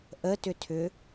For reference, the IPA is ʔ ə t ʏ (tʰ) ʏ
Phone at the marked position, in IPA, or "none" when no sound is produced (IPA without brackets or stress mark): tʰ